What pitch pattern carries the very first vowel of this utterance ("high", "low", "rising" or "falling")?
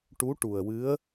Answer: rising